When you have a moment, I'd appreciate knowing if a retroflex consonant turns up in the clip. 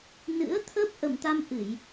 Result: no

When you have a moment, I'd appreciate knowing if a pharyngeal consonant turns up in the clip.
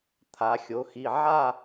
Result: yes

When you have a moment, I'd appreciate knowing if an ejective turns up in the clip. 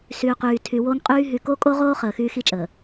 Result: yes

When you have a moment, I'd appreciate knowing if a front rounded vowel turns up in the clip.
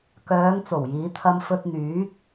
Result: yes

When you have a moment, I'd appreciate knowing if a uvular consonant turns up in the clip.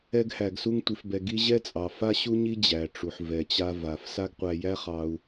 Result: yes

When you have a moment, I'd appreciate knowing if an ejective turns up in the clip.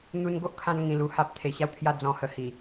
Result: no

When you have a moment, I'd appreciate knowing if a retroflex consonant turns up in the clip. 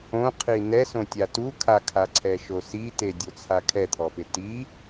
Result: no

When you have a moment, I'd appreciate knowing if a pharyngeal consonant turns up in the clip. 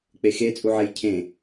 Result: yes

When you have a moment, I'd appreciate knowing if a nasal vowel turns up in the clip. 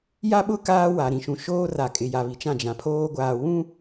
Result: yes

